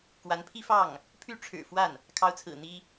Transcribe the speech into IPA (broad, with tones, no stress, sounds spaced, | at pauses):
k w a˧˥ n pʰ i˥ f ɑ˥˩ ŋ | pʰ y˥˩ ʈ͡ʂʰ ɻ̩˨˩ f w a˥˩ n | kʰ ɑ˧˥ ʊ̯ t͡sʰ ɹ̩˨˩ n̪ i˥